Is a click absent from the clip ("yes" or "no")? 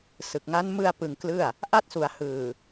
yes